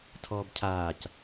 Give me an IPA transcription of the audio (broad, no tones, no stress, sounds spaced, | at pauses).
tʰ ɔː b cʰ aː c